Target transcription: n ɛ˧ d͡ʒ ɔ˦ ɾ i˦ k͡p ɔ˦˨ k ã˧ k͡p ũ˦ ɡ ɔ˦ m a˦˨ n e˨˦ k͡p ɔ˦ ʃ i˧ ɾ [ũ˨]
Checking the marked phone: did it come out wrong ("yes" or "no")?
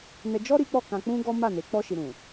no